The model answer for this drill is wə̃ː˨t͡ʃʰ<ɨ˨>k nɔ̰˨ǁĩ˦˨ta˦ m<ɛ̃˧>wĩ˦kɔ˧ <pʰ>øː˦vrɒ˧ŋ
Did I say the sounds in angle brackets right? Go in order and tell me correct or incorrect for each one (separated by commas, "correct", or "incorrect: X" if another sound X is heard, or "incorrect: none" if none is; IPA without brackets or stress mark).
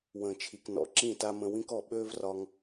incorrect: i˨, incorrect: ə̃˧, incorrect: ɓ